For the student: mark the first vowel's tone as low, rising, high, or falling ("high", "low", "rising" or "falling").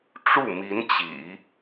falling